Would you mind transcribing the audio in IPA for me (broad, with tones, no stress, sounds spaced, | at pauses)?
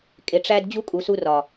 kʼ e˨ ʈ͡ʂ æ˧ d d͡ʑ u˦ kʼ u˨ s u˧ r ɒ˨